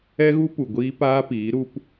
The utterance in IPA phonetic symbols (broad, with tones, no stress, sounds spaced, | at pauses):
ɛ˦ ɣ u˦ p u˨ ɡʷ iː˦ p aː˦ p iː˨˦ ɾ u˦ p